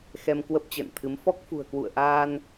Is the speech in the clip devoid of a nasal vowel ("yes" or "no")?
yes